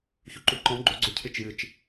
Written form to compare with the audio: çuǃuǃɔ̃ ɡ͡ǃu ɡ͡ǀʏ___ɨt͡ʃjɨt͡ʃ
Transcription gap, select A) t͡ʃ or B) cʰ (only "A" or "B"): B